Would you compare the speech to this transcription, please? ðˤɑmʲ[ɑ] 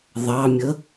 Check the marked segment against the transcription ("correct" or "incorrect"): incorrect